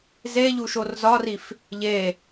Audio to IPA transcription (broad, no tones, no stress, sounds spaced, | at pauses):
z e ʎ u ʃ o r z ɒ r i f | ʎ e